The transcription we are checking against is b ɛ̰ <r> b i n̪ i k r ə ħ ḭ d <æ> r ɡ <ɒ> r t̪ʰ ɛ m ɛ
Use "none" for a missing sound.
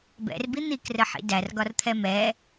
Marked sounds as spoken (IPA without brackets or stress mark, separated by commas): r, æ, ɒ